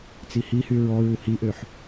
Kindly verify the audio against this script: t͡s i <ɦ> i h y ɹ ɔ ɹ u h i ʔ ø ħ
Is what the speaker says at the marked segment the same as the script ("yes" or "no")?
no